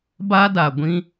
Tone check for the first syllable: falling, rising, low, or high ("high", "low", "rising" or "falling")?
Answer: high